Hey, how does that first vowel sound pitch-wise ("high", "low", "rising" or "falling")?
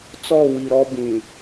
falling